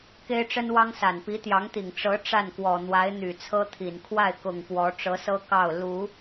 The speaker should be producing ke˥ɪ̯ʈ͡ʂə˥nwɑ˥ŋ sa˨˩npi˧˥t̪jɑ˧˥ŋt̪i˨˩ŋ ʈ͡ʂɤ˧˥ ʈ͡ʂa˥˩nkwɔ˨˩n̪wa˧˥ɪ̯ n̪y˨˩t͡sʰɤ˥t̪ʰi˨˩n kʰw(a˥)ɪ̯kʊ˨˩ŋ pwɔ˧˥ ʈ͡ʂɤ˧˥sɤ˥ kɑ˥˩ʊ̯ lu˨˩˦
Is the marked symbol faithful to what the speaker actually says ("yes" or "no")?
no